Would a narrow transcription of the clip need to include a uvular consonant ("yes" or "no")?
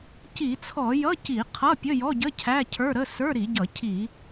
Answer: yes